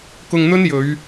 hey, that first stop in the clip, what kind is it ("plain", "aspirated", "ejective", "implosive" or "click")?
plain